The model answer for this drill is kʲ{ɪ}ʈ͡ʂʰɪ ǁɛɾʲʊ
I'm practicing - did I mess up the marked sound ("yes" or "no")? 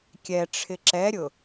yes